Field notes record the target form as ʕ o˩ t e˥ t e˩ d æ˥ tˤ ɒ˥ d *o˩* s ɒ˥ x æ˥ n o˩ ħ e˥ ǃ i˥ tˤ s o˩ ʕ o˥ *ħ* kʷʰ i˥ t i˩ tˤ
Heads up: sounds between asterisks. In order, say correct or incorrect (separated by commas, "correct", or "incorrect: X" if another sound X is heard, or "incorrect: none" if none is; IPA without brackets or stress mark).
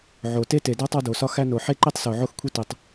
correct, incorrect: x